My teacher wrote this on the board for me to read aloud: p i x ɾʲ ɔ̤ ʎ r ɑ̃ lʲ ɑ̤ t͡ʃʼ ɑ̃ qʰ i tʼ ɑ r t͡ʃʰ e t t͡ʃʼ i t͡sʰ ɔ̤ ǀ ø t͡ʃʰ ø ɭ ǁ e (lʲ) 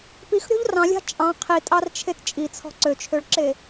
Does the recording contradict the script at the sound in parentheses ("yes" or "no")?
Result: yes